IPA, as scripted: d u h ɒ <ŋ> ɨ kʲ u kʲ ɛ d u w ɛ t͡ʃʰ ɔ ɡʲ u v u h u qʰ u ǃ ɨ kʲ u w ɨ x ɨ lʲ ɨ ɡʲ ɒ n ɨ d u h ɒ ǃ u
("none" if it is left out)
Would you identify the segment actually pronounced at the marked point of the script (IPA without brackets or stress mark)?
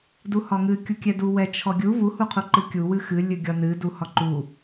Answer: ŋ